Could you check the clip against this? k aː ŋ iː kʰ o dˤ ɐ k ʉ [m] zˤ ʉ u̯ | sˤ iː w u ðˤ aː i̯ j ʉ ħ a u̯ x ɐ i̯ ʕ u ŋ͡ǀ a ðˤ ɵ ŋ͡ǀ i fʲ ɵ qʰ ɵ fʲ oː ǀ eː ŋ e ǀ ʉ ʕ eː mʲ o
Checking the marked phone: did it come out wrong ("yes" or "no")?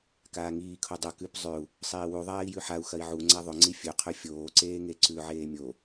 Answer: yes